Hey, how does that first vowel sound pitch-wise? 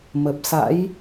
low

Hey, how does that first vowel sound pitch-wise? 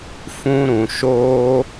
high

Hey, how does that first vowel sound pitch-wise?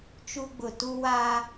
high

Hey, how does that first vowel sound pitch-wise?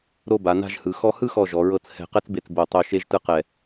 falling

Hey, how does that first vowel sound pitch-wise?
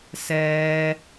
low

